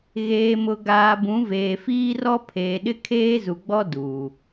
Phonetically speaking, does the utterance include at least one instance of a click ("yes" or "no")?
no